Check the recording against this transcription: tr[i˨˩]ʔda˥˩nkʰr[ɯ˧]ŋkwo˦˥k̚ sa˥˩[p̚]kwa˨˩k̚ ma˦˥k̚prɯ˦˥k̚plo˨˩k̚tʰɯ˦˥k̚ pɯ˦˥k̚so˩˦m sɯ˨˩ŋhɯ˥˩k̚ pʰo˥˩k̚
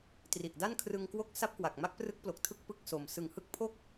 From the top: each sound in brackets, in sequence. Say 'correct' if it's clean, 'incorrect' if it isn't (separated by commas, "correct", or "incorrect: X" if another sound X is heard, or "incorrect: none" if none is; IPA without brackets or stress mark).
correct, correct, correct